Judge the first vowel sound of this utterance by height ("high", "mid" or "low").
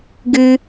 high